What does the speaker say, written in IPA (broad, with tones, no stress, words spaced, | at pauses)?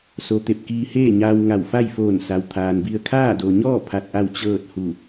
so˧ t̪e˧˩p̚kiː˧heː˥˨ɲaː˧w ŋa˧˩wfa˥˨jfoː˧˩n sa˩wt̪ʰaː˩nbi˧ə̯ kʰaː˥˨do˩ɲɔː˥˨ pʰa˧t̚ʔa˥˨w t͡ɕɤː˥˨t̚hu˧˩